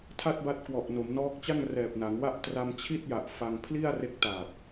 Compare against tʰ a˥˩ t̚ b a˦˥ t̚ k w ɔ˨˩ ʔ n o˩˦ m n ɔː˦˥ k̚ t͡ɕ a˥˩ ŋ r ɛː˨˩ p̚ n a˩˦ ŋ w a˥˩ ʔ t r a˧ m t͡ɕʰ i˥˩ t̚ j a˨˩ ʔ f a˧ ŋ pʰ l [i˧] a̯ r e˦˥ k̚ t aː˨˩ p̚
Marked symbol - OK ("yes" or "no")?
no